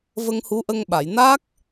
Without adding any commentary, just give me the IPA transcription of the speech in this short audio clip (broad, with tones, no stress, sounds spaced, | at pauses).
v ə˧ ŋ h u˧˥ ʔ ə˧ ŋ ɓ a˨˩˨ j n a˦˥ k̚